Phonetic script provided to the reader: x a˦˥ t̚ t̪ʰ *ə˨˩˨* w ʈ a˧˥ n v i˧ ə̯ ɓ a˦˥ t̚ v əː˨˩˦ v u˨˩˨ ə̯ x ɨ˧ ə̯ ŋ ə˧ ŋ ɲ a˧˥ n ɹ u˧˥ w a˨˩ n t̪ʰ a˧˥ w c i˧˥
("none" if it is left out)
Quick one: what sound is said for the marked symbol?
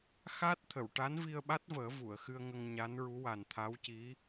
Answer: ə˨˩˨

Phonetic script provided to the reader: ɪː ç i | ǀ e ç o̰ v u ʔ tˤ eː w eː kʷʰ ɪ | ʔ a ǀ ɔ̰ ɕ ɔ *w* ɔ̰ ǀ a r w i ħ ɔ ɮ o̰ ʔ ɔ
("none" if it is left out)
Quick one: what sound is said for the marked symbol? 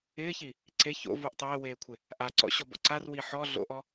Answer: b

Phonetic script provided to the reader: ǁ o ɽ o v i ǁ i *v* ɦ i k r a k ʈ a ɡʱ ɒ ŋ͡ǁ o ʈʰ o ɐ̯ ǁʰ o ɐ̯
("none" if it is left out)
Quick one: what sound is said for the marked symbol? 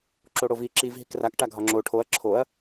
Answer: v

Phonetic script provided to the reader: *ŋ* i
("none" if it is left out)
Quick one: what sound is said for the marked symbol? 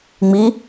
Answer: ŋ͡m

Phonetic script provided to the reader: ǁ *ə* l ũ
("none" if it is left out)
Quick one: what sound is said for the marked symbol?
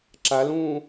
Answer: a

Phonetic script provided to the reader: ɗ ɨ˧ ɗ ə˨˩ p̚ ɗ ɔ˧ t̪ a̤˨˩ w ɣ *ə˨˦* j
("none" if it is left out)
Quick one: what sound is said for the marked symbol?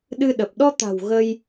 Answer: ə˧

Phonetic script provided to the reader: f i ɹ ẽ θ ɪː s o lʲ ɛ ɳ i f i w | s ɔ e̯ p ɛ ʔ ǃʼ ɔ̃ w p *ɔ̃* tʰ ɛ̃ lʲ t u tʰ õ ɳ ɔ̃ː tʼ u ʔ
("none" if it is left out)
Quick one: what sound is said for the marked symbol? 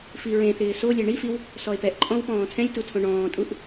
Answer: ɔ̃ː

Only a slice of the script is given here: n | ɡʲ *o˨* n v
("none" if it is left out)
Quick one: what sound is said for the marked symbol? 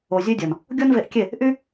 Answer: o˦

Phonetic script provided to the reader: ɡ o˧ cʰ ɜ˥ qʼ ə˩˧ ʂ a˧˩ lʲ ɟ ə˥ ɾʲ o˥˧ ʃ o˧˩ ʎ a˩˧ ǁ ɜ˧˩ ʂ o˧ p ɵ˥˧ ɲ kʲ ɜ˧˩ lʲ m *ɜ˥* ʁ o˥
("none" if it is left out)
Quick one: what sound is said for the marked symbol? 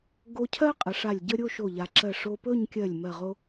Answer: ɜ˧˩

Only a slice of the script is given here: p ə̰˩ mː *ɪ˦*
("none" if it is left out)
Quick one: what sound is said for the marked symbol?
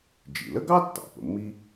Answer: i˦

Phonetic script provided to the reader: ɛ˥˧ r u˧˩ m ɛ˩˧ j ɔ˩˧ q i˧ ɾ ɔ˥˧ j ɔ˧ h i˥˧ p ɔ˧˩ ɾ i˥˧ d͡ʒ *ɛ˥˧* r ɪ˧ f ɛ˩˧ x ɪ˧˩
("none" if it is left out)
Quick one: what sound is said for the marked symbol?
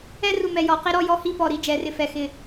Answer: ɛ˩˧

